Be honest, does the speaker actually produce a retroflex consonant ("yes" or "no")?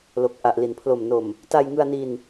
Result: no